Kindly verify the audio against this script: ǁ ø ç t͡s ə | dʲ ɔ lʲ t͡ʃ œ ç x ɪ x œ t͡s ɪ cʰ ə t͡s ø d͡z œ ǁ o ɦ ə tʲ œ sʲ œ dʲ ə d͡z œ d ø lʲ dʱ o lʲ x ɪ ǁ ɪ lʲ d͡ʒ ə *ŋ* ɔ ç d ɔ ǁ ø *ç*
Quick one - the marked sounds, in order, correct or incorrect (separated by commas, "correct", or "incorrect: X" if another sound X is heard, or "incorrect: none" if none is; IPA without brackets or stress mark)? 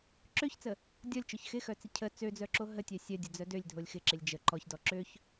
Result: incorrect: ǃ, correct